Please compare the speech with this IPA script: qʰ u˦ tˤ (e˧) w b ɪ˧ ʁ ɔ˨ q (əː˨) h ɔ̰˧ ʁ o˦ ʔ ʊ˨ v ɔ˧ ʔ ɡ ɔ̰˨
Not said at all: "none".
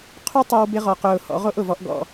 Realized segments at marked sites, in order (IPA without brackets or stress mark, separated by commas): e˧, ʊː˨